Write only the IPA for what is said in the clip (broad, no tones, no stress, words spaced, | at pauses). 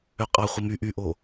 øqʼɑ χʷimy ʔyʔo